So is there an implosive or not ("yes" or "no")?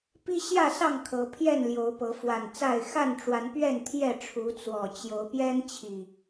no